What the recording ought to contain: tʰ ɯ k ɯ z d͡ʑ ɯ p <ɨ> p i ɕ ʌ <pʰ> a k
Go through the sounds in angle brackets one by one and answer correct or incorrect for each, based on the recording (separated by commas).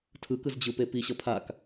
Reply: incorrect, correct